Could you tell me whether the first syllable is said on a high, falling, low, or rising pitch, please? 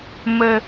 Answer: low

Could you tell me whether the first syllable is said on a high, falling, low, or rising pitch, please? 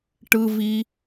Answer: low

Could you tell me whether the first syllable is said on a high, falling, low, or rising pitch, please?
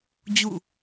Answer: falling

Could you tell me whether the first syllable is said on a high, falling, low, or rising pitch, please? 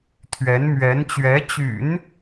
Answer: rising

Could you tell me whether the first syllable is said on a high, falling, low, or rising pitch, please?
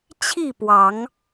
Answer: falling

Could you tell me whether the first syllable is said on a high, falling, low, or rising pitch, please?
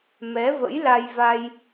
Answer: rising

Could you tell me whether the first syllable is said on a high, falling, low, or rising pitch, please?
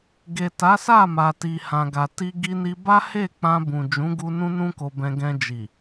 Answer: low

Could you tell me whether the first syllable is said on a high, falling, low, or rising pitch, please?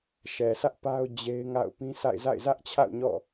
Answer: low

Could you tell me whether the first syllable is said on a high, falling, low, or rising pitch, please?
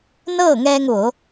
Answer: falling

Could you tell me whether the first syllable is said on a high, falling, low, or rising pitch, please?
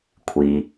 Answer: low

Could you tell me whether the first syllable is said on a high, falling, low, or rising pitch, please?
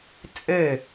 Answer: falling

